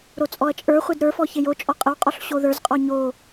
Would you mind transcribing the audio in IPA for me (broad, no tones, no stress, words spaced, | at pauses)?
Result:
ɾot͡sʼɔɐ̯t͡ʃʼə˞ χʷedɾə˞fɔ çejo t͡ʃʼɔqʼəwqʼɔɬ ɕoðə˞zqʼɔ ɲo